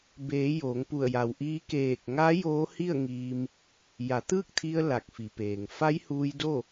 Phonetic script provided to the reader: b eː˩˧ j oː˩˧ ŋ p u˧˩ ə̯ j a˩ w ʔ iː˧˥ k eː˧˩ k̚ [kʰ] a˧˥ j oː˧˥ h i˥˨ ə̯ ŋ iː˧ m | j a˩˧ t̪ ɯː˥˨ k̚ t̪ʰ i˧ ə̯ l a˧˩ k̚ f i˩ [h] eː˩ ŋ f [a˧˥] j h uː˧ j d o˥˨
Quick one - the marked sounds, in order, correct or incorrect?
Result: incorrect: ŋ, incorrect: p, correct

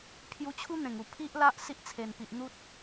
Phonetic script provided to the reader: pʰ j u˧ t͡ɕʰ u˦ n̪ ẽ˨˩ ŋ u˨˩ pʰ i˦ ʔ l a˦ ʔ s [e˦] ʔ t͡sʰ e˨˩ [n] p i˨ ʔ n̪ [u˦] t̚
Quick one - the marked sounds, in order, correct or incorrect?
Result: incorrect: i˦, correct, correct

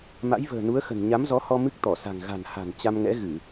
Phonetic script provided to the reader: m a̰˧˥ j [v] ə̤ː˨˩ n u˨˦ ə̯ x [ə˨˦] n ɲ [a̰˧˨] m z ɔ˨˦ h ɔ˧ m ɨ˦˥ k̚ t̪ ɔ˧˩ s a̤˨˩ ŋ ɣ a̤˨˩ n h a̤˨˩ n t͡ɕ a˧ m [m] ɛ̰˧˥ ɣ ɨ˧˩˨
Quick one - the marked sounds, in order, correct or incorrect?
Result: correct, incorrect: ə̤˨˩, incorrect: a˨˦, incorrect: ŋ

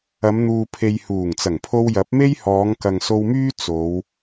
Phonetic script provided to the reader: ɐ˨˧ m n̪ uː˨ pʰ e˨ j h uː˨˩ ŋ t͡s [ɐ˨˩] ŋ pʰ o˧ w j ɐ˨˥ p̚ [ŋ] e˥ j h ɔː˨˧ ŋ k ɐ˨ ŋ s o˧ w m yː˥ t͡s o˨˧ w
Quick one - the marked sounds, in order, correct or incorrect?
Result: correct, incorrect: m

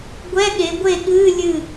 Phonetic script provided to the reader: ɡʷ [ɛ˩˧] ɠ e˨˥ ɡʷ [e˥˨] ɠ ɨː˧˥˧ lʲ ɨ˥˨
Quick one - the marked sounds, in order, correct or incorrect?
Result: incorrect: ɛ˧˥˧, correct

